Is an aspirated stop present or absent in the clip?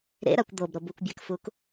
absent